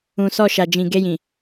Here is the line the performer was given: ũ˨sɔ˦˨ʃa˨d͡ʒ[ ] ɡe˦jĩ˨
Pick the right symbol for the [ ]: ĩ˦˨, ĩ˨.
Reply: ĩ˨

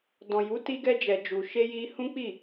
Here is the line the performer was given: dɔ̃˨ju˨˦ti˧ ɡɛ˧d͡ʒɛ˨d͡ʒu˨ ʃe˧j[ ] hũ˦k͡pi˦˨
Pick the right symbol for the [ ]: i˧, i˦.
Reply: i˧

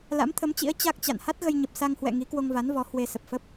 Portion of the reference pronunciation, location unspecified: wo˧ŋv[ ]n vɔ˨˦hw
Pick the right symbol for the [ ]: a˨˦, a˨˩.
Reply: a˨˦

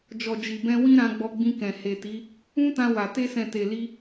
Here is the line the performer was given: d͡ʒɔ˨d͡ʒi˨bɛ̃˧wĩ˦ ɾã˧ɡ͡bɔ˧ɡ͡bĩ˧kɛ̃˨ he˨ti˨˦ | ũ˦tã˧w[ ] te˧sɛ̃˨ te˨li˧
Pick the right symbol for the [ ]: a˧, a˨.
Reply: a˨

